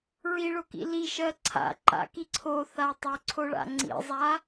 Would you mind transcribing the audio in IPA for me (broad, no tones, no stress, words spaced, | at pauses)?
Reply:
ɹiɭokḭ liʃɜ ǀʰa̰ǃa̰ki ǀʰoθa tˤoǀʰoɭa̰ ŋ͡ǀḭzˤa